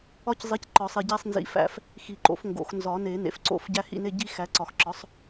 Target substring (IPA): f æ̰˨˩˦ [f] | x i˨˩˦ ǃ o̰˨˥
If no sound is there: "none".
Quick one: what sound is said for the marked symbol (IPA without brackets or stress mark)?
f